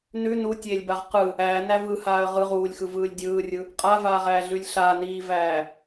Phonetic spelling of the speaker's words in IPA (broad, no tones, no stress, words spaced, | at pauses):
nʉ nutʲeːlʲbaʁ qɯ | æːnæ vɯhaːə̯ ʁɯ ʁuːlʲxɯvɯːlʲ dʲɯːrʲɯ | qʼavaːʁæːɮʉlʲ ɬaniːvæː